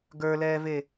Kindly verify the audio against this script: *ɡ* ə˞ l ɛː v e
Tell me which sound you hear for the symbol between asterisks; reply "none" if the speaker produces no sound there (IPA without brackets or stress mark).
ɡ